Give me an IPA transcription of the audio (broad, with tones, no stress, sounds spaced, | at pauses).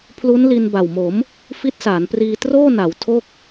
pʰ l u˦˥ n l i˧ n b a˨˩ w m o˩˦ m | f i˦˥ t̚ s aː˩˦ n p r iː˧ t r oː˥˩ n a˩˦ w tʰ o˥˩ k̚